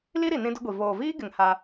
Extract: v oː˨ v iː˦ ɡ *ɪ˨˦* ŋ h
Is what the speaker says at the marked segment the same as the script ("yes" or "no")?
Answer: no